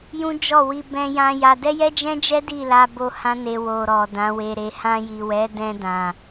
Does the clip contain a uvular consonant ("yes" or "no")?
no